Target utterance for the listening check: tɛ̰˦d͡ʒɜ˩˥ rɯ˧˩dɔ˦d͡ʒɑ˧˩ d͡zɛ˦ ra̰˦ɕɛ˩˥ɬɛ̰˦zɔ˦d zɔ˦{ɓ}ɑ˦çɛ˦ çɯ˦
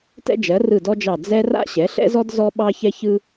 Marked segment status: correct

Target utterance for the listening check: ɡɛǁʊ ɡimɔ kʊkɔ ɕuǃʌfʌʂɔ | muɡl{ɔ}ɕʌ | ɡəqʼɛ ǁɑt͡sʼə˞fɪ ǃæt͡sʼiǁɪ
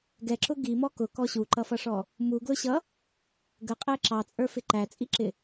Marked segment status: incorrect: ʊ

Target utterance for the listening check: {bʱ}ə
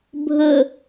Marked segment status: correct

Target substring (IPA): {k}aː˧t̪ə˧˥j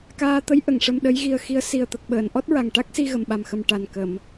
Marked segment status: correct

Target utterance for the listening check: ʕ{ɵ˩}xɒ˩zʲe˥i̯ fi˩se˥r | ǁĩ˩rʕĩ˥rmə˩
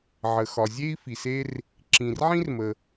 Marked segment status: incorrect: ə˩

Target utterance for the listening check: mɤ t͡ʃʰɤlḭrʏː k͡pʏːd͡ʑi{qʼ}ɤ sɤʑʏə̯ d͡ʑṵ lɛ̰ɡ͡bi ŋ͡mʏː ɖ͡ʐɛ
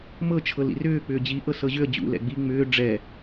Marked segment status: incorrect: ʔ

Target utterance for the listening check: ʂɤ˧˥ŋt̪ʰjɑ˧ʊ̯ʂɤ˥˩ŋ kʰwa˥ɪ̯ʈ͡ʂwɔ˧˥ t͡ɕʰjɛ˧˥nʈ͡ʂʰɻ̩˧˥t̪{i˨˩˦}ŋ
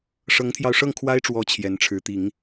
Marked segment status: correct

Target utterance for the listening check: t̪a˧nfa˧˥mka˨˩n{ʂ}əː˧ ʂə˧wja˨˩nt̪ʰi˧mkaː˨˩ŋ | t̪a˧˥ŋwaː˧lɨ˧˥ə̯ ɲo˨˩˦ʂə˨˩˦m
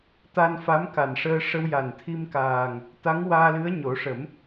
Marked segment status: correct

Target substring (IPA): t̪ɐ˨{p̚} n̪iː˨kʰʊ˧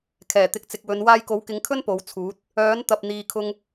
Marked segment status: correct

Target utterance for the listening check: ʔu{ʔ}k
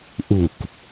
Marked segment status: incorrect: none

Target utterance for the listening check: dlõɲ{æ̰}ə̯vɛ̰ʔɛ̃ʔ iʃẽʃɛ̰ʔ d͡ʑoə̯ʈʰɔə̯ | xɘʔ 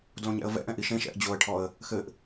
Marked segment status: incorrect: ɛ̰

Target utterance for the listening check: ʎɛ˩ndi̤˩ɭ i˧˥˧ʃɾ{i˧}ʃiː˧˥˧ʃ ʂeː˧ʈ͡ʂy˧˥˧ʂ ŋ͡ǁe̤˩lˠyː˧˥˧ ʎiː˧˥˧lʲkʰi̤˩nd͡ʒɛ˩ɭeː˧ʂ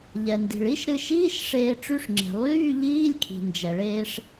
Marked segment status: incorrect: ɨ˧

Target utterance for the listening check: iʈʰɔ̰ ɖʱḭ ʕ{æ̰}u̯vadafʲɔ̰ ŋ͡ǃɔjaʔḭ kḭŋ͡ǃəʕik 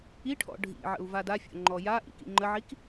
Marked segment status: incorrect: ə̰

